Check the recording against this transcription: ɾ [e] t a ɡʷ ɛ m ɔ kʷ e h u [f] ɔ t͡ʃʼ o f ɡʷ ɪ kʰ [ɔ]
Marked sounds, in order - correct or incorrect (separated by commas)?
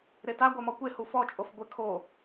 correct, correct, incorrect